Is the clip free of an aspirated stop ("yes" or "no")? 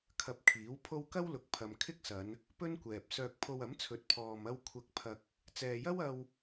no